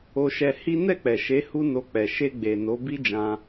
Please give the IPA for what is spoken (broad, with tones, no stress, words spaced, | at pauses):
o˧ʃɛ˧hi˦ nɛ˦˨k͡pɛ˨ʃe˨˦ hu˦no˧ k͡pɛ˨ʃe˧ɡ͡be˨ no˨˦bi˦d͡ʒã˧